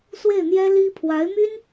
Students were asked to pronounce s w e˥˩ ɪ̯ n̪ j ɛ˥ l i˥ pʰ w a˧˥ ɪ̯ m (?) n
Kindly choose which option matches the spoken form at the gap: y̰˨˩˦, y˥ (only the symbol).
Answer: y˥